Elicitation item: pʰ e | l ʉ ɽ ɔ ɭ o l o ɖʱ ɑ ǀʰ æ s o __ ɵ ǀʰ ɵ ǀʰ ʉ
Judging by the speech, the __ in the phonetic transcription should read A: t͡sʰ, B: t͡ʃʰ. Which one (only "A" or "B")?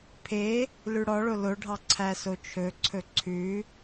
B